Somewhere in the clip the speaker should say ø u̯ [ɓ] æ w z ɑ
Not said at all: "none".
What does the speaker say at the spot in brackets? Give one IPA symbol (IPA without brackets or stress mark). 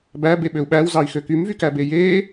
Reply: ɓ